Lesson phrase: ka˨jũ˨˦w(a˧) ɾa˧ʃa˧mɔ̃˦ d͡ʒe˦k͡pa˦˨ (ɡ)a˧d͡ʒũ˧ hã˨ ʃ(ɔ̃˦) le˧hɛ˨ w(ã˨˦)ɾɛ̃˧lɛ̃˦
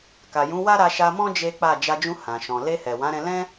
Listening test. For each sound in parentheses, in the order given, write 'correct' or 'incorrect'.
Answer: incorrect: a˦, incorrect: d͡ʒ, incorrect: ɔ̃˨, correct

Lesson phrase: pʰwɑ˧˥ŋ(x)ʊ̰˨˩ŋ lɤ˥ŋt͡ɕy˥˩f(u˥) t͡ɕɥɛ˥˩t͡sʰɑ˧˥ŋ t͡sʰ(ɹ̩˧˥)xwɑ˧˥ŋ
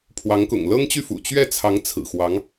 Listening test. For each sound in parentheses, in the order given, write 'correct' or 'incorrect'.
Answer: incorrect: k, incorrect: ṵ˨˩, incorrect: ɹ̩˨˩

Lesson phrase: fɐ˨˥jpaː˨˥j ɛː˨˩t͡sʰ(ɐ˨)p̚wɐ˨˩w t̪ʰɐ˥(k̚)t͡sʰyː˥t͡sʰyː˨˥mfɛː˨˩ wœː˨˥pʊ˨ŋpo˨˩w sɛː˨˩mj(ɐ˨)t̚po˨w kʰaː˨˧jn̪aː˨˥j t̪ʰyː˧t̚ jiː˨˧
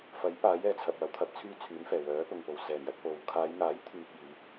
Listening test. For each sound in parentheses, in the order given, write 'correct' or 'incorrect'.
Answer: correct, incorrect: p̚, incorrect: ɐ˧

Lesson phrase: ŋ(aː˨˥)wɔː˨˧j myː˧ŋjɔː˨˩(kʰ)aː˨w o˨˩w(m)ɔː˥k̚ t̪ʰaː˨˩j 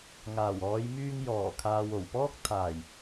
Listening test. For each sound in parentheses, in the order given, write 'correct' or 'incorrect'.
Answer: incorrect: aː˨˩, correct, incorrect: p

